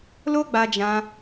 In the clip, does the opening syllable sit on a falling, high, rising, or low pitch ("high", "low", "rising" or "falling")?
high